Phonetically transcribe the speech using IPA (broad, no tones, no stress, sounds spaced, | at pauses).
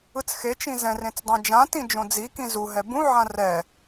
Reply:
ɯ t͡s x e t͡ʃ ĩ z ɛ̃ r ẽ t͡s dˤ ɛ̃ d͡ʒ ã t ĩ d͡ʒ õ d͡z i k ĩ z u ɦ ɛ b ũ ʕ ã r ɛ